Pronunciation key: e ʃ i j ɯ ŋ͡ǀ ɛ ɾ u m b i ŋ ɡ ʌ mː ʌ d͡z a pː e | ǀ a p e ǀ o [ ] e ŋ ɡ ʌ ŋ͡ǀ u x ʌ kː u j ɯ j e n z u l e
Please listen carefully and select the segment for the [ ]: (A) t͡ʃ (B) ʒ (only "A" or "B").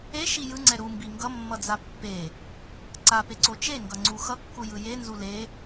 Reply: A